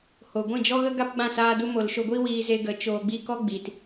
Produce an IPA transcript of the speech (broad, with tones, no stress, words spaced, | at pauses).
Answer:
ho˨ɡʷĩ˦˨d͡ʒɔ˦ɣə˦ ɡa˦pɡ͡bã˦˨ saː˧du˧mo˨l ʃo˦ ɡʷi˦wiː˧ze˧ɡə˨˦ t͡ʃoː˨ɡ͡bi˧ kɔ˦ɡ͡bi˨t